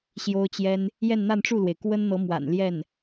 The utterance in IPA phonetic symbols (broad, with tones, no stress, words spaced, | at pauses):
ɕjo˥ʊ̯t͡ɕjɛ˥n | jɛ˥˧nn̪a˥˧nʈ͡ʂu˥˩lwe˩ɪ̯ kwə˥nn̪ɤ˧˥ mwa̰˨˩n ljɛ˥˩n